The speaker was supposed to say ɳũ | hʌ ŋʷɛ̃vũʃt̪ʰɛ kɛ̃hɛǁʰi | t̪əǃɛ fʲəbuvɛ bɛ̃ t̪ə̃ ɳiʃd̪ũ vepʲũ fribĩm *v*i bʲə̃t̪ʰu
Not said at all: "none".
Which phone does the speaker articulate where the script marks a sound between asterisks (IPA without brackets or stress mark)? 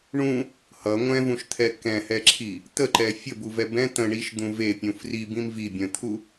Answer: v